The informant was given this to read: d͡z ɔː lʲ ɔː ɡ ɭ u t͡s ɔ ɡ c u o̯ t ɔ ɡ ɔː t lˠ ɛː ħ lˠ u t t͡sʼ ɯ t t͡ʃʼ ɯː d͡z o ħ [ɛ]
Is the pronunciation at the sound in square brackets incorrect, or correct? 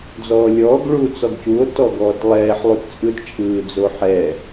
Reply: correct